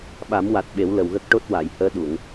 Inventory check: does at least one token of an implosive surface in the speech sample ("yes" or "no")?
yes